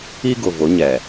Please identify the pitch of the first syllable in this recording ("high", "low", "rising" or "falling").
high